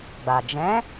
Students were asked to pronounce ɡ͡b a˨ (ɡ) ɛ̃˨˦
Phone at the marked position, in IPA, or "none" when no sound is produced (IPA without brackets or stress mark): d͡ʒ